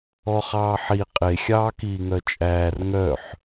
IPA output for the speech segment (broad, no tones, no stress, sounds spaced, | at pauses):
ɔ χ ɑː ħ i qʼ e xʲ ɑː k iː ŋ œ t͡ʃʼ æː r ŋ œ ħ